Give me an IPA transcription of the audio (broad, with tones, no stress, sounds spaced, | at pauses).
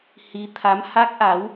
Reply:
h i˨˦ t̪ʰ a˨˦ m h a˦˥ k̚ ʔ a˨˦ w